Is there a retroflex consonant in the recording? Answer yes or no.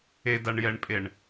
yes